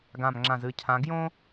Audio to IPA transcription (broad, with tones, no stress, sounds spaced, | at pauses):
ɡ ã˦˨ m ŋ͡ǁ ã˦˨ z ɨ˦˨ cʰ ã˧˥ ɡ j õ˥